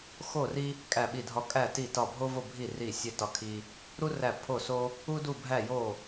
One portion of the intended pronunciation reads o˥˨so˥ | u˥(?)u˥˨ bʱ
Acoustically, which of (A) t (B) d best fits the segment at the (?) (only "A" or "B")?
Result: B